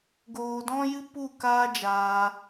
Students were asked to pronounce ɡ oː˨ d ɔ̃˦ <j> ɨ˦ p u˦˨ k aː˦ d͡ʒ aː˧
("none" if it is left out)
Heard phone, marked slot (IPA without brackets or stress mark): j